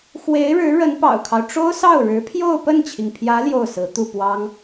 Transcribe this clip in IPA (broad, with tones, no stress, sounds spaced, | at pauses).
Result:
x w e˧˥ ɪ̯ ɻ ɻ̩˧˥ ɻ ə˧˥ n p ɑ̰˨˩ ʊ̯ kʰ ɑ˦ ʊ̯ ʈ͡ʂ o˥ ʊ̯ s ɑ˥˩ ʊ̯ ɻ ɻ̩˧˥ pʰ j o˥˧ ʊ̯ p ə˥˩ n t͡ɕʰ i˩ ŋ pʰ j ä˧˥ l j o˥˩ ʊ̯ s ɹ̩˧˥ t̪ u˥˩ p w ɑ˥ ŋ